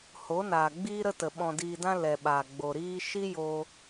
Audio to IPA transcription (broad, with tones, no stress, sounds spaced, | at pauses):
h o˨˦ n aː˨ ɡ͡b iː˦ ɾ ə˦ t ə˨ ɓ ɔ̃˨ d iː˨ d ã˧ l ɛ˨ ɓ aː˨ ɡ͡b o˨ ɾ iː˦ ʃ i˦ j o˧